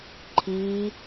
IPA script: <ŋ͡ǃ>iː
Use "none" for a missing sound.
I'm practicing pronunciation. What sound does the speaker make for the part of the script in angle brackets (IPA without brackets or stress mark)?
ǃʰ